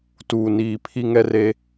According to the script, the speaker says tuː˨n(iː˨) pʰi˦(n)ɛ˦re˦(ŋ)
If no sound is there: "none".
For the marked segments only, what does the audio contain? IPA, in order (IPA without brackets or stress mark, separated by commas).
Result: iː˨, ŋ, none